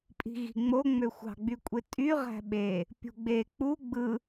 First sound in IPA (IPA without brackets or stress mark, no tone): pʼ